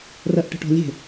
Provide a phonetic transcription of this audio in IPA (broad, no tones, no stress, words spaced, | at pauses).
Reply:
rɜʔʈə̤ʈɔ̤lʲe̤